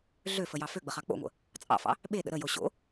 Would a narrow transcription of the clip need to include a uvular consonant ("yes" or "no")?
yes